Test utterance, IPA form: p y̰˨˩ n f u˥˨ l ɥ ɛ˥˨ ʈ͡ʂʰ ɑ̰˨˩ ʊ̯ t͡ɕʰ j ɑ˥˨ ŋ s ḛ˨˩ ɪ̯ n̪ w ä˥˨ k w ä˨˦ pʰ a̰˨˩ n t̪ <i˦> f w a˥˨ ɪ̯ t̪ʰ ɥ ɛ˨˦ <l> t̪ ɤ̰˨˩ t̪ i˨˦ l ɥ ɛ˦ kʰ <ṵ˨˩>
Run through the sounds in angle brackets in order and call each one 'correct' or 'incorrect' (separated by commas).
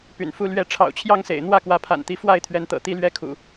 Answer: incorrect, incorrect, correct